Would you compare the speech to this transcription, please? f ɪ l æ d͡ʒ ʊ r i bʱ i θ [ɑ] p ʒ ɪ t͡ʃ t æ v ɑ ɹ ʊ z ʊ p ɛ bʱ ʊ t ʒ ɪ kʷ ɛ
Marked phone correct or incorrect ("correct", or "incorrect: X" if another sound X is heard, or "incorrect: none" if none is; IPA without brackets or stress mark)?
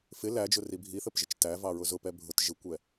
incorrect: ə